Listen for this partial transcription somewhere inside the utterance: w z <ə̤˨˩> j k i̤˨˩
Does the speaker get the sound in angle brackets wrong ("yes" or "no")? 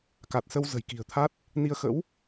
no